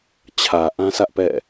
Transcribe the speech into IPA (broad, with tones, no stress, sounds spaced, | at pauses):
t͡ɕʰ ä˨ ʔ ã˦ s ä˦ ʔ p ɛ̰˦˨